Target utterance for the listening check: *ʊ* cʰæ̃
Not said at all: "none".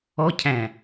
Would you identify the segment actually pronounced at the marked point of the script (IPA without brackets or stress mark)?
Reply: ɔ